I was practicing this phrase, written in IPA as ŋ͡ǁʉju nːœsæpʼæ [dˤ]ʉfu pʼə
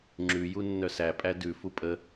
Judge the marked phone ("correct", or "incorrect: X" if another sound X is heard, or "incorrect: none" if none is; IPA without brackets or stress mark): incorrect: d